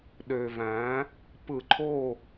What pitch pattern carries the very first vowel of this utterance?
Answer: low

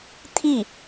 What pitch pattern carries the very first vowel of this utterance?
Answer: falling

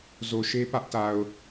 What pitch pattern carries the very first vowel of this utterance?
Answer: low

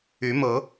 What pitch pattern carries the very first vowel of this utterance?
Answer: rising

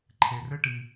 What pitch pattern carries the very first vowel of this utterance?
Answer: low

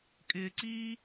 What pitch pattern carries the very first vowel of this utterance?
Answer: low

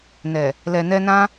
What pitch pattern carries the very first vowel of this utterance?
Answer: low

